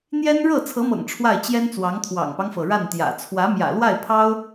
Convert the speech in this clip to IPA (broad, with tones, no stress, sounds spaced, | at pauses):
n̪ j ɛ˥ n ɻ ɤ˥˩ t͡sʰ ɤ˧˥ m ɤ̰˨˩ ŋ ʈ͡ʂʰ w a˥˩ ɪ̯ t͡ɕ j ɛ˥ n t͡s w ɑ˧˥ ŋ t̪ʰ w ɑ̰˨˩ ŋ p ɑ˦ ŋ f ɤ˩ ɻ a˥˩ n t̪ j ä̰˨˩ t͡sʰ w ä˧˥ m j ä̰˨˩ l w a˥˩ ɪ̯ pʰ ɑ˥ ʊ̯